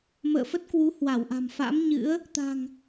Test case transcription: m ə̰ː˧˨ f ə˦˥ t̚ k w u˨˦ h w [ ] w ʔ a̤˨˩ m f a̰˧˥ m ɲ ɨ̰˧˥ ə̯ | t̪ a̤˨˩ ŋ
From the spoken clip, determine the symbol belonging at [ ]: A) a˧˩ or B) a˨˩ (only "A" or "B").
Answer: A